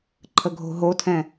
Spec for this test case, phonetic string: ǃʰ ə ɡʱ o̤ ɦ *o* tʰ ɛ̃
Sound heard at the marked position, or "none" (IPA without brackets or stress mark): o